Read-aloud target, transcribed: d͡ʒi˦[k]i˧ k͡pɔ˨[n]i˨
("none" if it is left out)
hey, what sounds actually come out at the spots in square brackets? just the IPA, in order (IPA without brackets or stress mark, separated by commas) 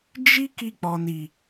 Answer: k, n